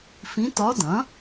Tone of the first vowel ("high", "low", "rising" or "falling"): rising